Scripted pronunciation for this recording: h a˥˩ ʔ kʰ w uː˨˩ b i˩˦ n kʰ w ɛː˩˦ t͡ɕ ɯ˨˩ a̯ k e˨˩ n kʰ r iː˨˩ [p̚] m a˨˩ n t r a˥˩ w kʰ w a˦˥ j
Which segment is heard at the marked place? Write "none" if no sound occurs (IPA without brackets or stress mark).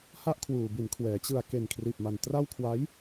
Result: p̚